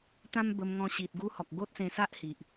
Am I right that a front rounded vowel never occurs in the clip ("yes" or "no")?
yes